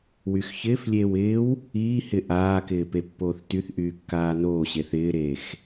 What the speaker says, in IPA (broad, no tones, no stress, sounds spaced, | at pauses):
w y x ç ɪː f lʲ eː w ɪː w | iː h ɪ ʔ aː k ɪː p e pː oː θ t y θ ʔ yː kː aː n oː ɕ e θ ɪː ɾ eː x